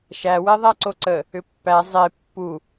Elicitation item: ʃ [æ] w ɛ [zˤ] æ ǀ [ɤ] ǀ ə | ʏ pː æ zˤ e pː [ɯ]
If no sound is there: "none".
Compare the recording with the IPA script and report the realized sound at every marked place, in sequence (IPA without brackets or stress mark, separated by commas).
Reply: æ, ðˤ, o, u